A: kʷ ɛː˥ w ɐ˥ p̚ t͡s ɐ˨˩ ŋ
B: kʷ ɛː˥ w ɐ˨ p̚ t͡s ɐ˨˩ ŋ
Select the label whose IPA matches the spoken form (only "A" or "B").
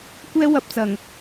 B